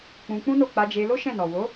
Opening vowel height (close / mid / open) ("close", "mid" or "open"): close